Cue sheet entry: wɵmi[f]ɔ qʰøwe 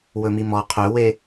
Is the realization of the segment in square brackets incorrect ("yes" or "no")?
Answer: yes